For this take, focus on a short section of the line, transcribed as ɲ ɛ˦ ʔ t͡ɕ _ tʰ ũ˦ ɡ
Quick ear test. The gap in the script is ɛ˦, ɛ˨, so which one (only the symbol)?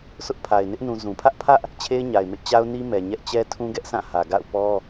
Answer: ɛ˦